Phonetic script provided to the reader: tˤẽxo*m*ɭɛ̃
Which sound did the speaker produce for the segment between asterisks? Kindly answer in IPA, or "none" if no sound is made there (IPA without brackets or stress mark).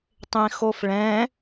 f